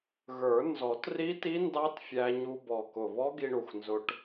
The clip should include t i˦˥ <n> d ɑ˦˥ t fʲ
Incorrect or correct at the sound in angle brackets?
correct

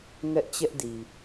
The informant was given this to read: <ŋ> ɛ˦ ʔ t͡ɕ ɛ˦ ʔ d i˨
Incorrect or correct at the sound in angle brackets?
correct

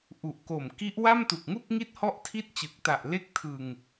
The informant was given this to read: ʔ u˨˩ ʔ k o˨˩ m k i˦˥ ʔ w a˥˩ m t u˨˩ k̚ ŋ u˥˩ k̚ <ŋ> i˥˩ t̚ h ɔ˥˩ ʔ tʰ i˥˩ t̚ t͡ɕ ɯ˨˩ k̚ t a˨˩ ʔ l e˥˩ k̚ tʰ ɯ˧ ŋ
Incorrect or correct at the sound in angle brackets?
correct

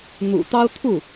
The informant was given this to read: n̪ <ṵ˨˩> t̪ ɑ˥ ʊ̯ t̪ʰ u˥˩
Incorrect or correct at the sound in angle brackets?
correct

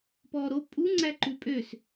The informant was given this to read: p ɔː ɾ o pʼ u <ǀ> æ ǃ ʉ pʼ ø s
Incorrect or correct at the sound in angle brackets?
incorrect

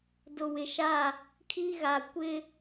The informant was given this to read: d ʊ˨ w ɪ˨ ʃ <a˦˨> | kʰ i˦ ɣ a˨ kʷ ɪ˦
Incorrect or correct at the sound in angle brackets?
correct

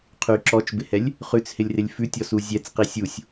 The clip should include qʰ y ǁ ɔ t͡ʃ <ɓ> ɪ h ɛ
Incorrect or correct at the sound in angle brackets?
incorrect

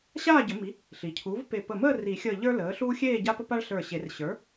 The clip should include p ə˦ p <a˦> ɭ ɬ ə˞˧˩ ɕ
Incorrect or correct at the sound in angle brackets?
correct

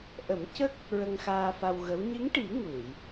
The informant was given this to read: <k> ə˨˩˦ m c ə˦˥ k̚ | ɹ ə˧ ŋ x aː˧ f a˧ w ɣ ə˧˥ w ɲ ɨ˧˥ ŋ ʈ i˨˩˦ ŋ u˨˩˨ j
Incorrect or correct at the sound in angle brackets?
incorrect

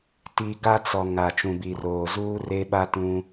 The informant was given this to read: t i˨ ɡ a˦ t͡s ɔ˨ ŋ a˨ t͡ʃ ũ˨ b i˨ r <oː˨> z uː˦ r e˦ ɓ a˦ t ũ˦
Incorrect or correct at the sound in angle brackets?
correct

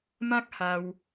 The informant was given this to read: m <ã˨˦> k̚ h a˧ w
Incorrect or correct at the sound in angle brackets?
incorrect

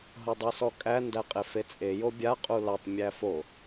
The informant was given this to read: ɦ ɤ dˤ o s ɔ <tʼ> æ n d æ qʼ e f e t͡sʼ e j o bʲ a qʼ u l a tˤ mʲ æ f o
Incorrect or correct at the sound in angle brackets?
incorrect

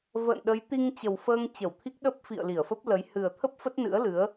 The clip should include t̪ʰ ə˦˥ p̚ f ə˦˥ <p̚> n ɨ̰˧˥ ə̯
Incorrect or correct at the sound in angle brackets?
incorrect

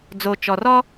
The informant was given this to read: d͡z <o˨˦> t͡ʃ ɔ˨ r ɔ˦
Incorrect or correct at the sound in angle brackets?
incorrect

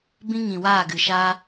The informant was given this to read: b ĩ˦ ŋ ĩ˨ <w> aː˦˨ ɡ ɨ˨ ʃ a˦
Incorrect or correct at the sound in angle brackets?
correct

